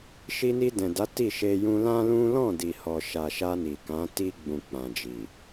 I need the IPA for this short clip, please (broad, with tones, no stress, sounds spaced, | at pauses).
ʃ i˧ n i˧ d ɛ̃˨ d a˨˦ t i˦˨ ʃ e˧ j ũ˧ l ã˦ l ũ˦ l ɔ̃˦˨ d i˨ h ɔ˨ ʃ a˨ ʃ a˧ n i˨ k ã˨˦ t i˧ ɡ͡b ũ˨ k͡p ã˨ d͡ʒ i˨